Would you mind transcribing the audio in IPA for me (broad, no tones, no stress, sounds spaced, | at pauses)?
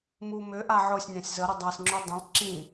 m u m ʏ ʔ a ʕ ʊ sʲ nʲ ã sʲ z ə ɾ ə dˤ a s ŋ͡ǁ u dˤ ə̃ lˠ ǁ ĩ